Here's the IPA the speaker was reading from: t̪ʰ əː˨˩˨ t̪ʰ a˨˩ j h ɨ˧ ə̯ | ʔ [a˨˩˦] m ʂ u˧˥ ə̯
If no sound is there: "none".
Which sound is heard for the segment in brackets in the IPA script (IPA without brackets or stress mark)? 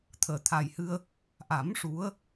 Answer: a˨˩˦